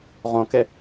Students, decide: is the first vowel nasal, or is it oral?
nasal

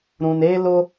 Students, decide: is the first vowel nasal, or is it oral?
nasal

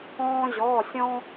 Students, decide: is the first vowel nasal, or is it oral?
nasal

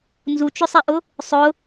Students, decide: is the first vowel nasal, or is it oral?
oral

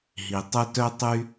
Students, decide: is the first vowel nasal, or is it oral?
oral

